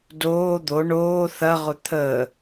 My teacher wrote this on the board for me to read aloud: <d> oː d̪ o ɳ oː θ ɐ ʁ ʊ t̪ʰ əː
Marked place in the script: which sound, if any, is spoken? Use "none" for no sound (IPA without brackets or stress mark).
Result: d